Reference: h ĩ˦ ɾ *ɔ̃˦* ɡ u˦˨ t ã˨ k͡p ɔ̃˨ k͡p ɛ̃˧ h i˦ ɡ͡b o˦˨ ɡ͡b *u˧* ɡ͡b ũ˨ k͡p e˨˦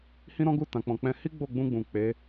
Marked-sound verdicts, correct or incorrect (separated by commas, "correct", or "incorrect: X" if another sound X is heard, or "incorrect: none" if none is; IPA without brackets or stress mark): correct, incorrect: ũ˧